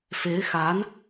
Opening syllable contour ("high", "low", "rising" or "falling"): rising